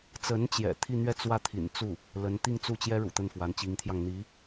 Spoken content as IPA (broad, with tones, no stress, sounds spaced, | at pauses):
t͡s ə˧˥ n t͡ɕ j ɛ̰˨˩ t̪ʰ i˥˧ n̪ ɥ ɛ˥˧ t͡s w ä˥˩ t̪ʰ ḭ˨˩ n t͡s u˥˩ | l ə˧˥ n t̪ i˥˧ ŋ t͡s u˥˩ t͡ɕ j ɛ˥ ɻ ṵ˨˩ t̪ ə˥˩ n f w a˧˥ n t͡ɕ i˧˥ ŋ t̪ʰ j ɑ˧ ŋ n̪ i˧˥